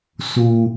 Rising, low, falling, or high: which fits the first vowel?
high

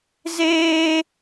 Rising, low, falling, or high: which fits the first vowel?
high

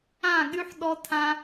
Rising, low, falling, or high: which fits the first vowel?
falling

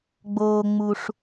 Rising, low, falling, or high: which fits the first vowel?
low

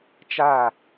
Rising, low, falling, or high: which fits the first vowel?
falling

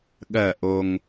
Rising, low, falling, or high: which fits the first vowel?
falling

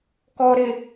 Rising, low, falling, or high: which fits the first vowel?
low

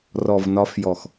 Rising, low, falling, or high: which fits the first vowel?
low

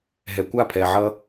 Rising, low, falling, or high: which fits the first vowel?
low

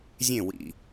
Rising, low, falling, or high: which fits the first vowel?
falling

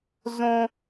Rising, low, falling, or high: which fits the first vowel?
high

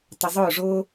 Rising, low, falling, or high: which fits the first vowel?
low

